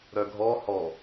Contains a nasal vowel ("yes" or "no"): no